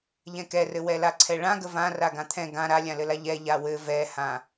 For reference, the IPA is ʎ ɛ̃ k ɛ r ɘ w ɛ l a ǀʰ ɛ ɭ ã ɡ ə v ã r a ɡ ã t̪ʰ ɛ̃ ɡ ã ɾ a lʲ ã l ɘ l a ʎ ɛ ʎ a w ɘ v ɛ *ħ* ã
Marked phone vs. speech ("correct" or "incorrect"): incorrect